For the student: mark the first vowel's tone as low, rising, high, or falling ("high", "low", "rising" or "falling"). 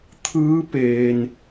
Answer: rising